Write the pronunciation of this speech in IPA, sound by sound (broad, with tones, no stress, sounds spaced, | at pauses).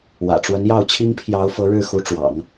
w ä̰˨˩ ʈ͡ʂ w ə˧˥ n j ɑ˥˩ ʊ̯ t͡ɕʰ i˥ ŋ pʰ j ɑ˧˥ ʊ̯ f ɤ˧˥ ɻ ɻ̩˥˩ x u˧˥ ʈ͡ʂ w ɑ̰˨˩˦ ŋ